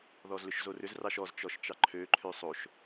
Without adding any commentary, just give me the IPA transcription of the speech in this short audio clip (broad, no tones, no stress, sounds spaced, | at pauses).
ð ɔ z l ʏ ʃ z o r ʏ z r ɑ ʃ ɔ z t͡ʃ ɔ ʃ t͡ʃ ɑ ǃʰ ø ǃʰ ø sˤ o ʃ